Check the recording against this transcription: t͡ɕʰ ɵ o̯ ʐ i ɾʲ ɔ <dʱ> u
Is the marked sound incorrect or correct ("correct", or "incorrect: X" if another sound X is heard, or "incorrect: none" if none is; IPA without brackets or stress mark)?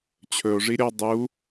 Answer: incorrect: dˤ